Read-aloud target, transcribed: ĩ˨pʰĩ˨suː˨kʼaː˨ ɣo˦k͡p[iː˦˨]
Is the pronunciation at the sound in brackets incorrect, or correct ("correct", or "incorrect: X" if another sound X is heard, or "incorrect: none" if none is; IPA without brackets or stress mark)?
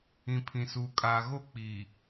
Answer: incorrect: iː˨